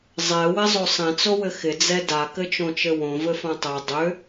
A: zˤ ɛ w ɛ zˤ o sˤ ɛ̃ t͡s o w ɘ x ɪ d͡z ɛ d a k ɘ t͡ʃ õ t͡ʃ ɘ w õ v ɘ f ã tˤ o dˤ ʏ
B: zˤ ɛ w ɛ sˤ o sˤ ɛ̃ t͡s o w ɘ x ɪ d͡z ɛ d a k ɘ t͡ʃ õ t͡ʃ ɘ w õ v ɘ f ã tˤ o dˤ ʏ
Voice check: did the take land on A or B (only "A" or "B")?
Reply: A